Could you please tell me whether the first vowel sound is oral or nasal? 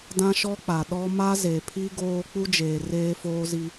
nasal